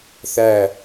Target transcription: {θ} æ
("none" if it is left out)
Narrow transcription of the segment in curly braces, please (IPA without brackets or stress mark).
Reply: θ